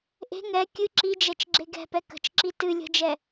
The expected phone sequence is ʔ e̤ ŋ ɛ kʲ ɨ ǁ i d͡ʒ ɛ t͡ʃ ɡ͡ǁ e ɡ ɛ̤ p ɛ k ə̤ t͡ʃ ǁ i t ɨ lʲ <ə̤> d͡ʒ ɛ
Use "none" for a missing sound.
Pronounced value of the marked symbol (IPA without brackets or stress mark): ə̤